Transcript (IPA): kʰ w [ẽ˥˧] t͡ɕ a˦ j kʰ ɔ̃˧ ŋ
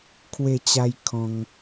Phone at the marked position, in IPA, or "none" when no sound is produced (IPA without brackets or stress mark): e˥˧